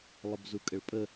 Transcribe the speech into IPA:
lˠəbzukʼəɭpʼə

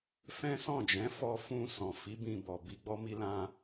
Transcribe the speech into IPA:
fɛ̃˦ sɔ̃˦˨d͡ʒɛ̃˨˦fɔ˧ fũ˧sɔ̃˨ fi˨˦ bĩ˧bɔ˨ bi˨˦ɡ͡bɔ˦mi˦lã˦

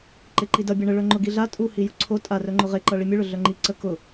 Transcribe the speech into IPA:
ǃeǃidʌ bʲʌɳə ɭœŋ͡ǃʊɡiɮa tʼuhi jʊǀʰo tʼarœŋ͡ǃʊ ʁeǃʌ ɭimʲʊɭʊ ɮœŋ͡ǃi ǀə kʊ

